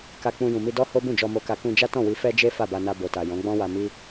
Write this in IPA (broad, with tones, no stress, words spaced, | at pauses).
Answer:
ka˧k͡pũ˧ jũ˨mi˧ dɔ˦ho˦ bũ˦˨d͡ʒɔ˧mo˧ka˧ kũ˧d͡ʒa˦ tɔ̃˦˨wi˧ fɛ˦ d͡ʒe˦ fa˦˨ba˧na˧ bo˨ta˨ jɔ̃˨˦ɡ͡bɔ̃˦wa˧ mi˦